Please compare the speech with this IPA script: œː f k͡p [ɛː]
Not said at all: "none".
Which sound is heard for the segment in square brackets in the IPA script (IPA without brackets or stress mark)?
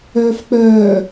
œː